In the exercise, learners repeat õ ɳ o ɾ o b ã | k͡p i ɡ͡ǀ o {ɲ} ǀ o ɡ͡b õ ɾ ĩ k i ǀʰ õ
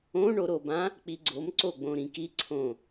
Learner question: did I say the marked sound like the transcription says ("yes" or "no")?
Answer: no